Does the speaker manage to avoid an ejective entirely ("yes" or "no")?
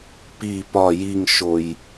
yes